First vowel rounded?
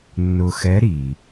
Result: yes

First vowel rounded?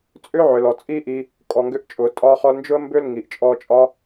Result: yes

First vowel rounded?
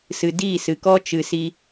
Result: no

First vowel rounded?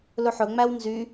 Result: yes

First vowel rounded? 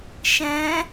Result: no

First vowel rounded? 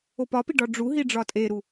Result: yes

